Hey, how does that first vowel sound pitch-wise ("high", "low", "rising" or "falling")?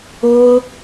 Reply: high